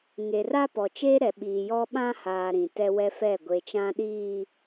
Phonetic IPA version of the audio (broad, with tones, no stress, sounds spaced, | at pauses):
ŋ e˨ r a˦ p ɔ˨ t͡ʃ eː˦ ɾ ɛ˨ ɓ iː˨ j ɔ˦ ɓ ã˦ h aː˨ ɾ ĩ˨ t ɛ˦ w ɛ˦ f ɛ˦˨ ɡʷ e˨ t͡ʃ ã˦ ɗ iː˨